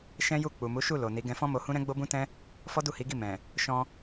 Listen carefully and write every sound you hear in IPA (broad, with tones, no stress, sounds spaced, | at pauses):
ʃ ɛ̃˦ j u˦˨ k͡p u˨ m u˨˦ ʃ u˦˨ l o˨ n i˨˦ ɡ ɛ̃˧ f ɔ̃˦ m o˧ h ũ˦ ɾ ɛ̃˦ ɡ͡b o˦ b ũ˦ t ɛ̃˦ | f ɔ˦ d u˦˨ h i˨˦ ɡ i˦˨ m ɛ̃˨ | ʃ ɔ̃˧